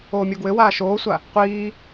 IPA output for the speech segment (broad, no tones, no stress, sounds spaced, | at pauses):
oː mʲ o ɡ w ɘ w aː ʃ oː sʷ a | qʷ iː